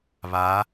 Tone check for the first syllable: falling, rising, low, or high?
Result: rising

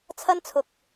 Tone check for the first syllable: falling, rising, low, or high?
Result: high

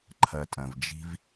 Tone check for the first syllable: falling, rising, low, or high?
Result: low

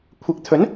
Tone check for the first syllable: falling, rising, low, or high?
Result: rising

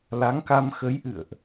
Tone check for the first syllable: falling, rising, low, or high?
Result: rising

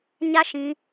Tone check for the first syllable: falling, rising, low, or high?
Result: high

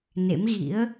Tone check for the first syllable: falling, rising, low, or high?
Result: rising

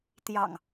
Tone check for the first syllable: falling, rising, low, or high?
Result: low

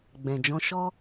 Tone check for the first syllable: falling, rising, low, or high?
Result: low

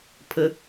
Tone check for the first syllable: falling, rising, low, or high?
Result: low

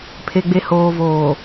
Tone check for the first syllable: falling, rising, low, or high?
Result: low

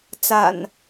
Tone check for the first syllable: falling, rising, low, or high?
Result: low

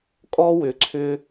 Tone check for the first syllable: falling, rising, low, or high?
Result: high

